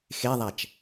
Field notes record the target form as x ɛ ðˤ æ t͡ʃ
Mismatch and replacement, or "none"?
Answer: ɛ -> e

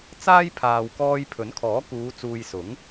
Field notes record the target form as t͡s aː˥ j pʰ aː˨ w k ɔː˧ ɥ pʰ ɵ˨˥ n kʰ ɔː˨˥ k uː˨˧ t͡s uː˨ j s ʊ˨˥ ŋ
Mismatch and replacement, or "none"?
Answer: ɥ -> j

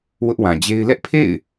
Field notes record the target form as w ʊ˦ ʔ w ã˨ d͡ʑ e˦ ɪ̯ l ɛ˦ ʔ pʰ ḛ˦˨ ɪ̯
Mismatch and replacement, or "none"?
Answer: none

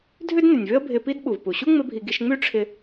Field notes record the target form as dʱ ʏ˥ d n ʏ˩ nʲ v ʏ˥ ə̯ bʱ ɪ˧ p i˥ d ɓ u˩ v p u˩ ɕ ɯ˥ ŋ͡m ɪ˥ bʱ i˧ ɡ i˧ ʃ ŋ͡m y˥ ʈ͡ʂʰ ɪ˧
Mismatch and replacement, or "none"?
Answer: ɯ˥ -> u˥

